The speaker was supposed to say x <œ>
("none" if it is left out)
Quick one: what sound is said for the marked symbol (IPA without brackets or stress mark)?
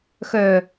œ